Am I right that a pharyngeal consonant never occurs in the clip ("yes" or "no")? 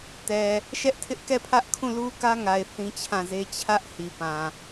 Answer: yes